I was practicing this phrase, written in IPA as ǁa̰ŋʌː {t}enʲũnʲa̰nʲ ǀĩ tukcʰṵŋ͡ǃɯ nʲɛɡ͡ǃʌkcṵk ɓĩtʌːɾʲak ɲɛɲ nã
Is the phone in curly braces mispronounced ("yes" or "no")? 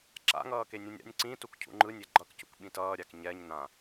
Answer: yes